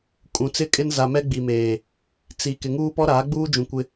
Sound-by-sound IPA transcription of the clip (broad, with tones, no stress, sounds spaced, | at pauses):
kʼ ũ˨ t͡s ɪ˦ kʼ ɪ˦ n z a˨ m ɛ˦ ɡ͡b i˨ m eː˨ | t͡s i˨ k ɪ˨ ŋ uː˦ p ɔ˦ ɾ aː˨˦ ɡ͡b uː˦ d͡ʒ ũ˨ kʷ ɪ˦